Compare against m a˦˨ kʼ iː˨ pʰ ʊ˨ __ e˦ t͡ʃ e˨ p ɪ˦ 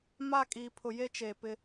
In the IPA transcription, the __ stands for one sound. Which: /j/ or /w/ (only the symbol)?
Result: j